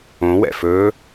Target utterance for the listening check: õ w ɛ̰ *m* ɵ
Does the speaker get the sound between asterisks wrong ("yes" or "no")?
yes